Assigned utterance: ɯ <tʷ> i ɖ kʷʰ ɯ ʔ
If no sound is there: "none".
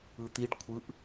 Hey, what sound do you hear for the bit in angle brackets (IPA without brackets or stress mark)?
t̪